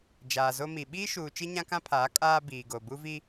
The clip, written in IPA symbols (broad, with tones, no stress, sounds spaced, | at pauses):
d͡ʒ aː˨ z o˦ m i˨ ɓ iː˦ ʃ uː˨ t͡ʃ i˦ ɲ ã˦ k ã˦ pʰ aː˨˦ kʼ aː˦ b iː˨ ɡ o˨ b u˦ v i˦